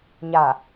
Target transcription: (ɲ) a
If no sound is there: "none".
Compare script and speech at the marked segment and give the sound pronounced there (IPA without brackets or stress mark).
ɲ